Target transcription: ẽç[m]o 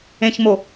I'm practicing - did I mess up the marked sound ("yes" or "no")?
no